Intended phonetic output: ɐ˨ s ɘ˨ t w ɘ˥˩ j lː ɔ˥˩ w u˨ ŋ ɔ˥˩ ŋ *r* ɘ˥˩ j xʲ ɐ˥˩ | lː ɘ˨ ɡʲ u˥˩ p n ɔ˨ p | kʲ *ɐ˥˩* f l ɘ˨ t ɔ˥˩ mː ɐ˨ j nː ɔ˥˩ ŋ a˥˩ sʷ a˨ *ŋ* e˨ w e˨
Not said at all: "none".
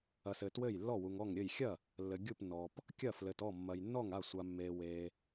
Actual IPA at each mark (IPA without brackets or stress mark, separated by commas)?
ɾʲ, ɐ˥˩, mː